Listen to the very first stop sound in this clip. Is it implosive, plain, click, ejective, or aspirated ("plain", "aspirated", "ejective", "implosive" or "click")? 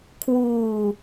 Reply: aspirated